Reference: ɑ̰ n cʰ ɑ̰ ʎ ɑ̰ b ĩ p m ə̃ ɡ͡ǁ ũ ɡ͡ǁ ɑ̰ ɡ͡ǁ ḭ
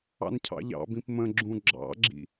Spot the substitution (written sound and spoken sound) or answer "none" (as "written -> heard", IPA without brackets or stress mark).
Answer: none